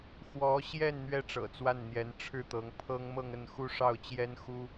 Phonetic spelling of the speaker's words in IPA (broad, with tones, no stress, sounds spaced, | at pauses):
x w ɔ˧˥ ɕ j ɛ˥˩ n n̪ ɥ ɛ˥ ʈ͡ʂ ɤ̰˨˩ t͡s w a˥˩ n n̪ j ɛ˧˥ n ʈ͡ʂʰ ɻ̩˥˩ t̪ ɤ˧˥ ŋ pʰ ɤ˥ ŋ m ɤ˥˧ ŋ ə˥˩ n x u˥ ʂ ɑ˥˩ ʊ̯ t͡ɕ j ɛ˥ n x u˥